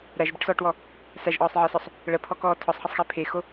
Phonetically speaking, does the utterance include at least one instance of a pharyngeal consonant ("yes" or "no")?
yes